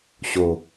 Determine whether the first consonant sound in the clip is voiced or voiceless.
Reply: voiceless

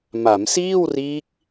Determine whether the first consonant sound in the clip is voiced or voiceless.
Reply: voiced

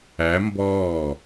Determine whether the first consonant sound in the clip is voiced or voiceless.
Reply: voiced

